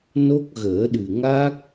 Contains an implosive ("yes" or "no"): yes